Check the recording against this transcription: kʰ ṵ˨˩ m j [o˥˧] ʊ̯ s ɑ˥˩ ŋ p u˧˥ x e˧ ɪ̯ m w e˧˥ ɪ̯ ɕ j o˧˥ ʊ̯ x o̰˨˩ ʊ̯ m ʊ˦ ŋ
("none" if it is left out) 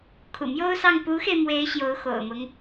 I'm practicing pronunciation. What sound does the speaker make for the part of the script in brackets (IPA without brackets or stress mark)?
o˥